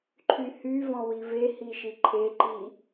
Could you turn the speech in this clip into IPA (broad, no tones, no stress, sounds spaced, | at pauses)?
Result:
ǃʰ y h y v ɔ̃ w i v e h i ʃ i ǃʰ e ǃ i